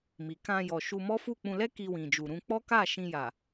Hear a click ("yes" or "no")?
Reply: no